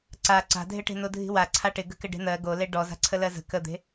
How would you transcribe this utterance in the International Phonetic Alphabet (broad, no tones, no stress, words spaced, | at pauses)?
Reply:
ǀa ǀa̤dʱɪʈe̤ nodʱi̤wa ǀʰaʈɪ ɡə̤kɪɖe̤n̪ɜ ɡole ɖɔza̤ ǀʰəlɜzə̤ kəd̪e̤